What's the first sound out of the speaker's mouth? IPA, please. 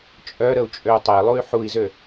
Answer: t͡ʃʼ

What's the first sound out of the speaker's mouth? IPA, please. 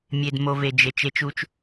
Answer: mʲ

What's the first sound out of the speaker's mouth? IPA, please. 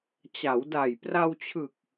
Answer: t͡ɕ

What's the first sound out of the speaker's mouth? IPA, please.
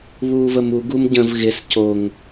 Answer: β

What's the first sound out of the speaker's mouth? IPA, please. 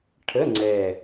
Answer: ʈʰ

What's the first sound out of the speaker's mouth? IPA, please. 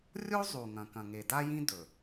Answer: rʲ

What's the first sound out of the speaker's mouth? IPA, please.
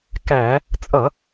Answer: k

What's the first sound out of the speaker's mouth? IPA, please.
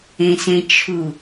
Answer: ẽ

